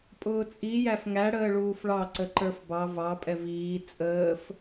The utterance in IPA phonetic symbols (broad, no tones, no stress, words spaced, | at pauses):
pʼʊːt͡sʼi jæfŋæ ɽəːɭuːfɭɑ ǀəǃə˞fbɑ vɑ pʼɛviː t͡sʼəːf